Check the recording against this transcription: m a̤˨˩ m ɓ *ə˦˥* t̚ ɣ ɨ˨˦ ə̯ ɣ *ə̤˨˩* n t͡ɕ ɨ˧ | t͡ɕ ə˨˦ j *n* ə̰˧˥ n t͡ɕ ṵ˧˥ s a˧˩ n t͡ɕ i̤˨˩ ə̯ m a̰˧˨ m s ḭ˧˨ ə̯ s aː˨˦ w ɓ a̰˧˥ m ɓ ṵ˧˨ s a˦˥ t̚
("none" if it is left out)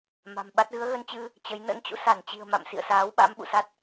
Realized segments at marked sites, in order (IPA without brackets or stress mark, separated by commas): a˦˥, ə˧, n